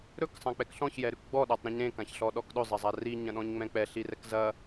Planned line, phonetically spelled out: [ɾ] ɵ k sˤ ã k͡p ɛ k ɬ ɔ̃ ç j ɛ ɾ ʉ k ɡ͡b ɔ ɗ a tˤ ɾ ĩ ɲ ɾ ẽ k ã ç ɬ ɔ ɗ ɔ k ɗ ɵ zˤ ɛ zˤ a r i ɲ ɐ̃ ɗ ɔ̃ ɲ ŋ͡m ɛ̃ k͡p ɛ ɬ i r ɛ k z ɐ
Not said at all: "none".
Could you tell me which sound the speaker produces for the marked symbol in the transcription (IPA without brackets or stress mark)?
ɾ